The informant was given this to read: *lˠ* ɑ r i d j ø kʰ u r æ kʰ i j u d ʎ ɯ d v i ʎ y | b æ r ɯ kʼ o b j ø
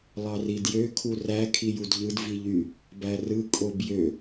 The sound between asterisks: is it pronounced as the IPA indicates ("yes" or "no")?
yes